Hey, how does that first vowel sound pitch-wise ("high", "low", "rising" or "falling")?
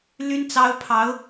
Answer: high